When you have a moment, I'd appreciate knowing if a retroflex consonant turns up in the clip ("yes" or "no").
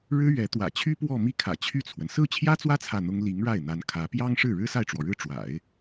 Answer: yes